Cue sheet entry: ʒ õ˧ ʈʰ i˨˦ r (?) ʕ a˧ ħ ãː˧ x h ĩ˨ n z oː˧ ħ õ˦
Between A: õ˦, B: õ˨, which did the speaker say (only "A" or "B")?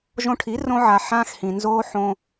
A